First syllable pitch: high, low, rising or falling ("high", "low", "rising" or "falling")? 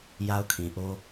high